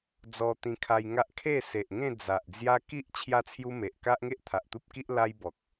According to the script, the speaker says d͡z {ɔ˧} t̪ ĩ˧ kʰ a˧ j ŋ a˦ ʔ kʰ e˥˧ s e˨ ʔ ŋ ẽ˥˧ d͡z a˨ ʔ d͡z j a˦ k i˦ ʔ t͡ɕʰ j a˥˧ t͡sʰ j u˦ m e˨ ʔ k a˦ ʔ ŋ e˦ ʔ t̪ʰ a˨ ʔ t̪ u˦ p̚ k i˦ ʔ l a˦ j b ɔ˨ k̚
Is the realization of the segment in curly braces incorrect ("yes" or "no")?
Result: no